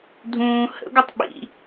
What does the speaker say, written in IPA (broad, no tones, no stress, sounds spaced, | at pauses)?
dʱ ũː h ə̰ ɡʷ ə tˤ ɓ ḭ